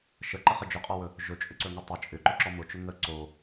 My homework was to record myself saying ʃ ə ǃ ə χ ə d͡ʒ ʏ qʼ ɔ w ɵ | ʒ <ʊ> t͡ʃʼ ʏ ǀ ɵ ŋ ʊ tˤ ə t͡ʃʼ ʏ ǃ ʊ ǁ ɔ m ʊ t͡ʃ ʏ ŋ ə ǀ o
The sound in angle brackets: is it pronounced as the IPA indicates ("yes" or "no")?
no